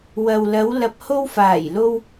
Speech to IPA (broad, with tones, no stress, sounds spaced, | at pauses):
w ɐ˨ w l ɐ˨˧ w l ɐ˨ p̚ h o˧ w f aː˨˩ j l o˧ w